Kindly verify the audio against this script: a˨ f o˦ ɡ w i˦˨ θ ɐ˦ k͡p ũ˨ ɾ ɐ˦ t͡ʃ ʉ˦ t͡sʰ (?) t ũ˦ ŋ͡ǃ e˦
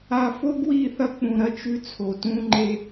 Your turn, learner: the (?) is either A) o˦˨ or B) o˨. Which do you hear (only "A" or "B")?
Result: B